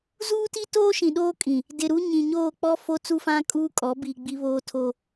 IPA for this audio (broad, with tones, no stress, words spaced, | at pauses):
zuː˦ti˦ toː˦ʃĩ˨ɗoː˦kʼĩ˨ | dɪ˨ɾu˦ɲĩ˨ ɲoː˦˨k͡pɔ˦ fo˦t͡su˦fã˦ kʼuː˦kʼɔ˨˦bi˨ ɡ͡bi˦βoː˦tʰo˦